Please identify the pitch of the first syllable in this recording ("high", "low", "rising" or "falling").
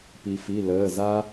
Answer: low